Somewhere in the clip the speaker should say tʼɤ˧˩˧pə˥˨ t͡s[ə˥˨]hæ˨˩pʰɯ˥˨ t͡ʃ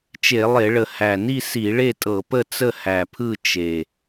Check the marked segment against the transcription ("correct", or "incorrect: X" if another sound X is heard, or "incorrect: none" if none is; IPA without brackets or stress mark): correct